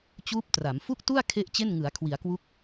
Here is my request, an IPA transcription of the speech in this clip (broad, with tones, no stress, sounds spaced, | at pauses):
t͡ɕ uː˦˥ p̚ t r a˩˦ m f u˥˩ k̚ t u˥˩ a̯ kʰ e˥˩ ʔ t͡ɕ e˥˩ n ŋ ɯ˩˦ a̯ kʰ w i˩˦ a̯ k w u˦˥ k̚